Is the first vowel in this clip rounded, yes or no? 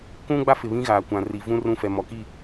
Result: yes